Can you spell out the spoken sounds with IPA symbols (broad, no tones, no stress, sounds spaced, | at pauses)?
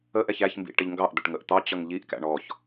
ə ʔ ɛ ç æ ç m b ḭ ʈ ɪ ʎ ŋ ɡ ɑ ʔ d̪ ə ʈ ŋ ə ʔ t̪ ɑ t͡ɕ ʌ ŋ ʎ i ʔ k æ̰ ɳ ɔ ç